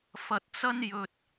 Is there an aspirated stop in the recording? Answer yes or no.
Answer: no